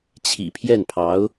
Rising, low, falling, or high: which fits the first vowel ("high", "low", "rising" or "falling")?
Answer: low